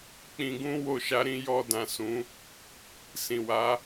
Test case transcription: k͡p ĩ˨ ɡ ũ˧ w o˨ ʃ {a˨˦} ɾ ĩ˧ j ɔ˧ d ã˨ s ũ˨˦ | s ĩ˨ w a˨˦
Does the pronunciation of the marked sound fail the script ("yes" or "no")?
no